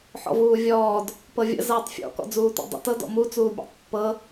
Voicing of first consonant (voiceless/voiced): voiceless